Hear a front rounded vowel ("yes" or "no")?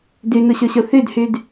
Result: yes